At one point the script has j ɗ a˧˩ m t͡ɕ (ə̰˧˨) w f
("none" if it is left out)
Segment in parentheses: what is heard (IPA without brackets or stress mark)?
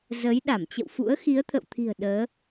ə̰˧˨